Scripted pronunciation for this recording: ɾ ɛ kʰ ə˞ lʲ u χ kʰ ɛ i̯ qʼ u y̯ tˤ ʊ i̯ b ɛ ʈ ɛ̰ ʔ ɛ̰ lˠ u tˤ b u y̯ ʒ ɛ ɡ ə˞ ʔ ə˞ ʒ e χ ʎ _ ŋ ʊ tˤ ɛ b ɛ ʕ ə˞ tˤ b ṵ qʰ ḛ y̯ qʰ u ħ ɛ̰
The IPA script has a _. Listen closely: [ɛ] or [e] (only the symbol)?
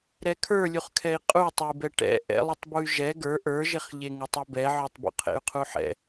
e